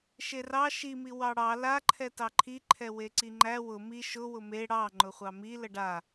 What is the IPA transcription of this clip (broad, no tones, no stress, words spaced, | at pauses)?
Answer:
ʃerɑ ʃimi wɑɽɑ laǃʰɛ tɑǃʰiǃʰɛ weǀiŋ͡ǃæ wʊ mi ʃʊ wʊme ɽɑ ŋ͡ǃʊχʷɑmi ləɖa